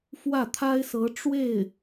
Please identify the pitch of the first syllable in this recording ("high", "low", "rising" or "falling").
falling